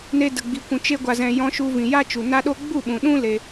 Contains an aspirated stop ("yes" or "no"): no